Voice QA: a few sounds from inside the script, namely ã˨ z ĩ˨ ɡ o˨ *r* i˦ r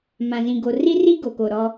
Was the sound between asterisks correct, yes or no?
yes